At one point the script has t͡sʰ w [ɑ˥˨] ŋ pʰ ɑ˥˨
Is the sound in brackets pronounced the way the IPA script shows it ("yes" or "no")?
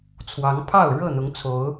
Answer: no